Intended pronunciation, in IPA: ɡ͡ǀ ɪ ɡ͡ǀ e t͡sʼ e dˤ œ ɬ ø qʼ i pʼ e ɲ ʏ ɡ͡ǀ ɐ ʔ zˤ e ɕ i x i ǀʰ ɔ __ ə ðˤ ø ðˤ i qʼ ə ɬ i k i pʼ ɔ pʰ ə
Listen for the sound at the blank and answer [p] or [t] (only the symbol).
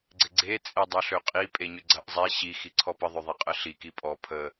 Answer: p